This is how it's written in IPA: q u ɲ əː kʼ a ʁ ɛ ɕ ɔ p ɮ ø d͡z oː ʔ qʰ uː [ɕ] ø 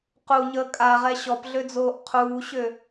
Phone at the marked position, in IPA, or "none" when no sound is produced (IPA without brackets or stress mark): ɕ